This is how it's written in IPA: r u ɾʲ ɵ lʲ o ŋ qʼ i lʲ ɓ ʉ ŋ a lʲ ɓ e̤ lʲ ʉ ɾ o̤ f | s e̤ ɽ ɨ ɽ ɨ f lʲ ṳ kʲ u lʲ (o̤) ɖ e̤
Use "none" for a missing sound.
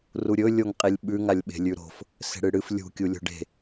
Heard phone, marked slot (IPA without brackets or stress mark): o̤